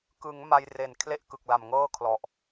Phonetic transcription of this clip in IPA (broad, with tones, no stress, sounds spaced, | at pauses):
k ɯ˩˦ ŋ m a˧ j r e˨˩ n kʰ l e˥˩ ʔ k ɯ˨˩ k̚ l a˨˩ m ŋ ɤː˥˩ kʰ l ɔ˨˩ ʔ